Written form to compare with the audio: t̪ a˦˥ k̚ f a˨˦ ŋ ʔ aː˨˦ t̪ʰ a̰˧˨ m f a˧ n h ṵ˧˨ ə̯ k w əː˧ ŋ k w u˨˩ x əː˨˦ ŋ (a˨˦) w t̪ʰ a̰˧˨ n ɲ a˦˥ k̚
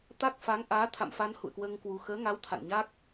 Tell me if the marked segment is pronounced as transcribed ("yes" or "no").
yes